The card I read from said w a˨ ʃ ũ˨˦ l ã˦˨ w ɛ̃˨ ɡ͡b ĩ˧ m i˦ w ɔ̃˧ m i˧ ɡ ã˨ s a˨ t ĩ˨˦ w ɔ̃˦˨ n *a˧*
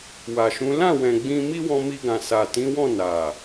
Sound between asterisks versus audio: incorrect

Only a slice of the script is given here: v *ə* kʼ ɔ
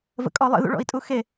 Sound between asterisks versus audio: incorrect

